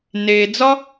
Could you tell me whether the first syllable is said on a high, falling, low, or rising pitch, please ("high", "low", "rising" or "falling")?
low